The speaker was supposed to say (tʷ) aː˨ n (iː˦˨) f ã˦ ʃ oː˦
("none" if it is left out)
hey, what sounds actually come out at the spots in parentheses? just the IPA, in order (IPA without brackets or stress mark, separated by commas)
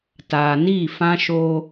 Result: t, iː˦˨